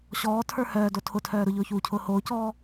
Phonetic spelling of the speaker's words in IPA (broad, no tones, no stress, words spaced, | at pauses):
ɕɔːtʰə˞ hœːdo tʰʊtʰœː ɾʊʎʊːçuːcʰʊː hoːcɔː